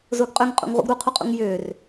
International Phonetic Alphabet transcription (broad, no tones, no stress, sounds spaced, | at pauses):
z ʊː ɡ qʼ ø ŋ qʼ ṵ ŋ ʁ ṵ ɡ ɾ u qʰ u qʼ ṵ ŋ j ʏː r